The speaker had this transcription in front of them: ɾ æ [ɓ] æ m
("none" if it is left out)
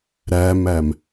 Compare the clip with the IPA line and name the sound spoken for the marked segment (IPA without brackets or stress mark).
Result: m